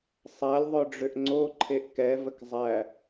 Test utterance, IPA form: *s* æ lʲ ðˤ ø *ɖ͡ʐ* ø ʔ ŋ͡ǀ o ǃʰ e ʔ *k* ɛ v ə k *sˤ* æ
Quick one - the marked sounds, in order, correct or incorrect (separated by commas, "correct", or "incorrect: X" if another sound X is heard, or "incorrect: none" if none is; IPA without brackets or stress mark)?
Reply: incorrect: sˤ, correct, correct, incorrect: zˤ